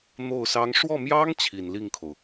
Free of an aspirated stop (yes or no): no